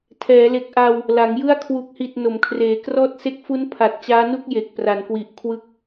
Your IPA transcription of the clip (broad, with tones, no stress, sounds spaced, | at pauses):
tʰ ɛː˩˦ l e˨˩ k̚ ʔ a˧ w | l a˩˦ ŋ j ɯ˥˩ a̯ kʰ w u˨˩ k̚ h i˨˩ t̚ n o˩˦ m kʰ r eː˩˦ k r ɔː˥˩ t̚ s e˦˥ k̚ f u˦˥ n pʰ a˨˩ t̚ t͡ɕ aː˦˥ n u˥˩ k̚ j e˨˩ k̚ p r a˩˦ n k w i˨˩ ʔ kʰ w ɯ˦˥ k̚